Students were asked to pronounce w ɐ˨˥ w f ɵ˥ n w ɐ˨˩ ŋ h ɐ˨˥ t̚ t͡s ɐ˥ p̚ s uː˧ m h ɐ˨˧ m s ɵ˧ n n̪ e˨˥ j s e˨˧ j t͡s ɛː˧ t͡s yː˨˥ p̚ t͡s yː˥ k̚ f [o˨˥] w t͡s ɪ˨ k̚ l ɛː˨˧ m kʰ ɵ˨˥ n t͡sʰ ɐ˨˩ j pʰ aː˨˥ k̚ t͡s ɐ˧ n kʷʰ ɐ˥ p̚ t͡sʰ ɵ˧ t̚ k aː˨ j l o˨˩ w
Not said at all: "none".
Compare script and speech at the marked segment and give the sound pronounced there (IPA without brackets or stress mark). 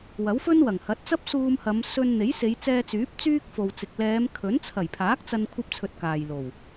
o˨